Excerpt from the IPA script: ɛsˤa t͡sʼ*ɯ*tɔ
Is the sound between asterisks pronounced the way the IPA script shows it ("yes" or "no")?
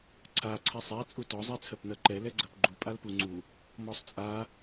no